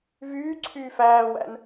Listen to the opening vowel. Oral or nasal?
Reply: oral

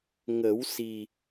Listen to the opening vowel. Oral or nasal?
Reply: oral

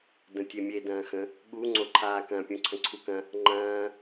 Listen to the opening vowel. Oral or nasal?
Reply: nasal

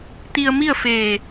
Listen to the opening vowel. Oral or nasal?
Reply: oral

